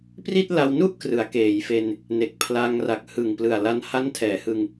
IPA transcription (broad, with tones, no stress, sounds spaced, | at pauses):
p r i˥˩ t̚ l a˧ w n u˥˩ ʔ k r ɯ˩˦ a̯ k eː˩˦ j f e˧ n | n e˨˩ k̚ pʰ l aː˧ ŋ r a˨˩ k̚ h ɯ˨˩ ŋ p l ɯ˨˩ a̯ l a˧ n h a˦˥ n tʰ ɛː˩˦ h ɯ˧ ŋ